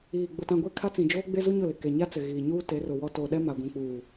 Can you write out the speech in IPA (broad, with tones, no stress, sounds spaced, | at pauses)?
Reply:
iː˨ ɡ͡b ʊ˨ t ã˨ ɡʷ e˦˨ kʰ a˦ t͡s ĩ˨ d͡ʒ oː˦ ɡ͡b e˦ z u˦ ɲ ʊ˦˨ l ɪ˨ k e˨ ɲ a˦ t͡s ɪ˨ ɣ iː˨ ɲ uː˦ t e˨˦ r ʊ˨ w ɔ˦ t o˨ ɗ ɛ˦ m a˨ ɡʷ ũ˨ k͡p uː˨